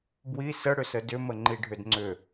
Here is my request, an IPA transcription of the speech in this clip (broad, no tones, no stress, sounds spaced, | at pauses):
b w i s ə ɽ ʏ s ə d ʏ m ə ŋ͡ǃ i ɖʱ ʏ d ŋ͡ǀ ʏ